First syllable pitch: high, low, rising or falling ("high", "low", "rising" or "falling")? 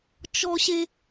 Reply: high